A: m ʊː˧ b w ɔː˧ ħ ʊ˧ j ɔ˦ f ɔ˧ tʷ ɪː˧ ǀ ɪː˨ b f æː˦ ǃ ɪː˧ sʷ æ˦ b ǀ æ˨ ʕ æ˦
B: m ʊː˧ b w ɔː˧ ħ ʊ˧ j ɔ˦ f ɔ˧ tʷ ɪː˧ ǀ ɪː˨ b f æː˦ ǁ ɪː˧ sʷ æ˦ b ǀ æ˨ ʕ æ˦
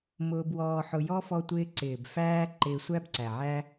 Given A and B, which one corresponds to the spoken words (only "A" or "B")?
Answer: A